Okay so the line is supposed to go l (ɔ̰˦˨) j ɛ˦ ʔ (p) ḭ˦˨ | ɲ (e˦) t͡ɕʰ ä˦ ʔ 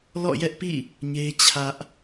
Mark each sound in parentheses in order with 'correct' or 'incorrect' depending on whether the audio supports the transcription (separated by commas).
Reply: correct, correct, correct